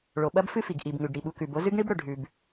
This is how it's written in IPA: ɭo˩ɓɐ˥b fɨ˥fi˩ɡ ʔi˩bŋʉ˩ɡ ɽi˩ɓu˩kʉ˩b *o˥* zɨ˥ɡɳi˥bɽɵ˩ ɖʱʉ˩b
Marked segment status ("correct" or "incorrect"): correct